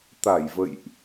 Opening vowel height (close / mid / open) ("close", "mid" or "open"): open